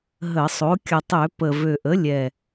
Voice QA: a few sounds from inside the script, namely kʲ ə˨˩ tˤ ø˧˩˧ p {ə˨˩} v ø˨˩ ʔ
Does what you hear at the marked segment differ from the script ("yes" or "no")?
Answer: no